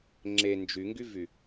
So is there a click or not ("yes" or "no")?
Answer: yes